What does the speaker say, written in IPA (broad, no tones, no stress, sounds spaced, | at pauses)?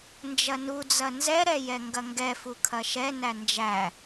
n d͡ʒ ɐ n u d͡z ɐ n z ɛ ɾ ɛ j ɛ ŋ ɡ ɐ ŋ ɡ ɛ f u kʰ ɐ ʃ ɛ n æ n d͡ʒ æ